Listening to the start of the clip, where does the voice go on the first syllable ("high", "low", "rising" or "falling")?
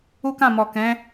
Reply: high